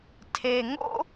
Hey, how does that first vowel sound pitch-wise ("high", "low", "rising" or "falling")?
low